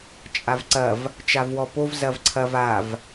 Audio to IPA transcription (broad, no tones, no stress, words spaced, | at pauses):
t͡ʃʼavǀɐv | t͡ʃavwɔpov zɐvǀʰɐv av